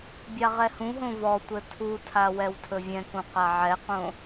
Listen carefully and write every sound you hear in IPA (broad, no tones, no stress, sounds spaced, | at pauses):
bʲ a ʁ ɛ h ũ ɦ õ v ɔ tʷ ɘ tʰ u tʰ a w ɛ w tʰ ɵ vʲ ɛ̃ k ũ q a ʕ ɛ q õ